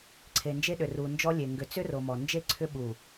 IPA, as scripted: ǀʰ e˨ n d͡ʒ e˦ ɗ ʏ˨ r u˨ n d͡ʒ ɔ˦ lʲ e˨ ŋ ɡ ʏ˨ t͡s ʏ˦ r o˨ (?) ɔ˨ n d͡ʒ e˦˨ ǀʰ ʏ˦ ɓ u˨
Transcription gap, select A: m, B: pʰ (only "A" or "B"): A